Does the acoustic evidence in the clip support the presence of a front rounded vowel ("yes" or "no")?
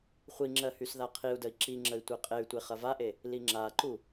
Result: yes